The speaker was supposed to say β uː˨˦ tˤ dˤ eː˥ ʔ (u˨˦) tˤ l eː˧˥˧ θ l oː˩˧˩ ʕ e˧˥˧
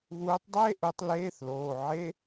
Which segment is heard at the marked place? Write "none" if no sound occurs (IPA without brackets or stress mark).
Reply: u˨˦